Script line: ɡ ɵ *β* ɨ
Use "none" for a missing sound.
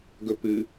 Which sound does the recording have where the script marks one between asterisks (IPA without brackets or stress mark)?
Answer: p